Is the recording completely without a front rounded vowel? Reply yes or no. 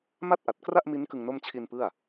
yes